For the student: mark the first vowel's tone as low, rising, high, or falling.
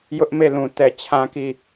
high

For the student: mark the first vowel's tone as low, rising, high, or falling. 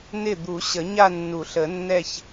falling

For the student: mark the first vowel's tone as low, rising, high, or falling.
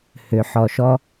low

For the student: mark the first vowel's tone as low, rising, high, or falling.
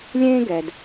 high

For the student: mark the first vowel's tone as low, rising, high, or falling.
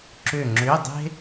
falling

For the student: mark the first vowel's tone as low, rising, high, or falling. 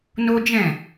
high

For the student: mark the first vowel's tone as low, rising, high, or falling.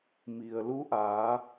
low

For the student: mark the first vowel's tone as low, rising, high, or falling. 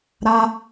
high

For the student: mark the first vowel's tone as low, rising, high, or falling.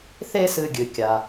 high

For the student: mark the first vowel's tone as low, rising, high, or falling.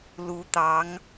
rising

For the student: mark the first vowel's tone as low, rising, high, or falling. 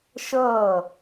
falling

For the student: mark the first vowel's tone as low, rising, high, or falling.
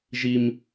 high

